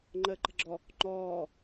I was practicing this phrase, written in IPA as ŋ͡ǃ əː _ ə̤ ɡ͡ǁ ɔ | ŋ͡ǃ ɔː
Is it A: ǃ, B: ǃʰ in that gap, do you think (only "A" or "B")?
A